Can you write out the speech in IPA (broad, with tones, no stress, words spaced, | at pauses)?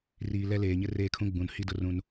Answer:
riː˨lɛ˦ leː˨ɲɪ˦ reː˦kʰũ˦ ɡ͡bũ˨nhi˦dʊ˦ rũ˦n